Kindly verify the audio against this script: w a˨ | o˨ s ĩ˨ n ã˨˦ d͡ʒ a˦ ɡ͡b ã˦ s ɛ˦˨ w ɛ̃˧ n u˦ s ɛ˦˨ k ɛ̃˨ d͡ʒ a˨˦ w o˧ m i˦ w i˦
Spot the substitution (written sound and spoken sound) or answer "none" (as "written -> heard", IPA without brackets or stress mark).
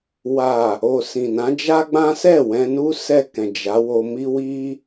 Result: none